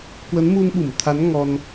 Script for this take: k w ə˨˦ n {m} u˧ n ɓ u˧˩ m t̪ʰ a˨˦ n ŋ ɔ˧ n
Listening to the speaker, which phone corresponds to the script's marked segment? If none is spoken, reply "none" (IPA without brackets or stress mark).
m